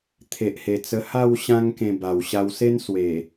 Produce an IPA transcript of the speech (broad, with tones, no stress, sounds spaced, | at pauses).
t̪ʰ e˨ ʔ h e˨˩ t͡s ə˧ h a˥˧ w ɕ ã˦ ŋ k ẽ˧ b a˨˩ w ɕ a˧ w s e˦ n s w e˨˩